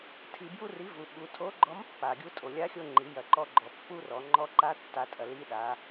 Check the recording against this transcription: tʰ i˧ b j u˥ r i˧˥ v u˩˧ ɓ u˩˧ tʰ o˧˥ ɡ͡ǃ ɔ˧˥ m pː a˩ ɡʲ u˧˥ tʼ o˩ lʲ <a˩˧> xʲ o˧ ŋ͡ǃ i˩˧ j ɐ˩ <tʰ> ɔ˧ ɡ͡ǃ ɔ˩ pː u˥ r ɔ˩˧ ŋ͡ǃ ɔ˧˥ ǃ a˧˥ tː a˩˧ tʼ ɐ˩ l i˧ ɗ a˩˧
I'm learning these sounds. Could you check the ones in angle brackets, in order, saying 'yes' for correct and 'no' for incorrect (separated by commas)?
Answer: no, no